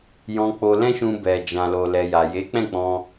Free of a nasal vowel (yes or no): no